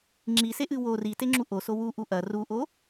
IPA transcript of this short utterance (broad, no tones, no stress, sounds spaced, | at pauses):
ŋ͡ǁ i s e ʔ ɨ w o r i t e ŋ͡ǁ u ʔ o s o w u ʔ u ʔ ɐ r u ʔ o